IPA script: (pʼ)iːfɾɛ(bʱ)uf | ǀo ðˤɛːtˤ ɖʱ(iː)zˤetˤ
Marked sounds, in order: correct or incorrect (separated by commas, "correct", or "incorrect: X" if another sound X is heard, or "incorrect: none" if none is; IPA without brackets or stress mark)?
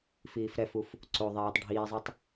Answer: incorrect: f, incorrect: f, correct